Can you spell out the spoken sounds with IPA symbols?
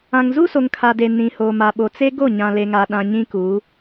ã˨ ŋ z u˦ s o˨ ŋ kʰ a˨ d e˨ n ĩ˨ h oː˨ m a˨ ɓ o˨ t͡s e˦ ɡ o˦˨ ɲ ã˨ l e˨ ŋ a˨ ɗ ã˨ ɲ ĩ˦ k u˨˦

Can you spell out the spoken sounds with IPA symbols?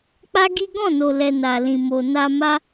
k͡p a˦ ɡ i˦ ɡ ɔ̃˦˨ n o˨ l ɛ˨ n a˨ l ĩ˨ m o˨ n a˧ m a˦

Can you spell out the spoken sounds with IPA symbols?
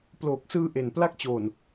p l oː˨˩ k̚ s ɯː˧ ʔ e˨˩ n p l a˦˥ k̚ t͡ɕ oː˨˩ n

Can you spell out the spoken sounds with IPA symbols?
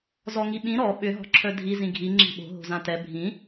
z ɔ ŋ i ɓ ĩ ɾ ɔ ɓ ʏ ɦ ɔ̤ ǁʰ œ dʱ i z ĩ ɡʱ i ŋ͡ǁ i̤ ɓ o̤ ɦ o̤ z ã t ɛ bʱ ĩ

